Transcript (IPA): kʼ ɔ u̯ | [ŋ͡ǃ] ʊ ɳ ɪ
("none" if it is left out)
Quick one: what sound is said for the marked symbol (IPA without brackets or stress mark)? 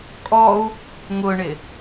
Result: ŋ